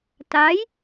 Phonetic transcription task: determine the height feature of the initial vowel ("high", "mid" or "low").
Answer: low